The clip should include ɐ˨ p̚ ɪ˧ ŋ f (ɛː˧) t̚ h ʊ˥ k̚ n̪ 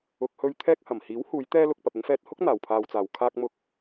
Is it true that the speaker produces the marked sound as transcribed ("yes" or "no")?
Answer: yes